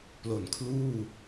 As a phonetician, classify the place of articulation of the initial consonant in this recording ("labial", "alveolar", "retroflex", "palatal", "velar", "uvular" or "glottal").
labial